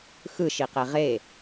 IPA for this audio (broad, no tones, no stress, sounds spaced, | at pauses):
x ɯ ʃ i q e ʁ e